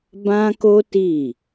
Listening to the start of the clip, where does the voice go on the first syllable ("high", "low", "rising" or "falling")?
high